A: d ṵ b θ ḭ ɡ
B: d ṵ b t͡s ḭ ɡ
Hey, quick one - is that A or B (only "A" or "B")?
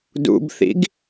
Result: A